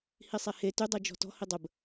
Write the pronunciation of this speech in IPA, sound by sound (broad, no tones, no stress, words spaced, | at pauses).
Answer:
hisˤehe tydˤi d͡ʒɔ̤tɔ̤ hidˤəb